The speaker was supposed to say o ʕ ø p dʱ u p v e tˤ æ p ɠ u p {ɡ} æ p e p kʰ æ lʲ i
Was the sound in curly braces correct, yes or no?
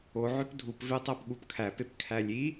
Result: no